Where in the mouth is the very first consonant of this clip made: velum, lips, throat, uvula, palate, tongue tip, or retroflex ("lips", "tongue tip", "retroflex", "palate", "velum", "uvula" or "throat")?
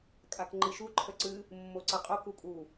velum